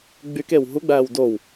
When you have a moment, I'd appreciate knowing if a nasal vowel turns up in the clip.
no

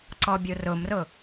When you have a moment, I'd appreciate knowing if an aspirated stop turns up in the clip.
no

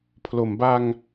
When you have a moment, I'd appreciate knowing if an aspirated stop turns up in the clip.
yes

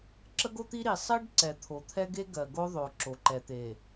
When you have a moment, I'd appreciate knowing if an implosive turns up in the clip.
no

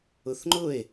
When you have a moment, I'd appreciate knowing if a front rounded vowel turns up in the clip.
no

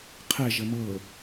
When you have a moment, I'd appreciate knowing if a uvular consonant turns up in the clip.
yes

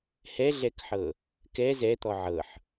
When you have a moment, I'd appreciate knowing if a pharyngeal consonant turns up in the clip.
yes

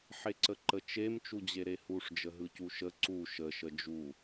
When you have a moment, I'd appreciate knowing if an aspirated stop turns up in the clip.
no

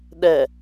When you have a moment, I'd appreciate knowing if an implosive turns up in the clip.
yes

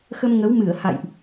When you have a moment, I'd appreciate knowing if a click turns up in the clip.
no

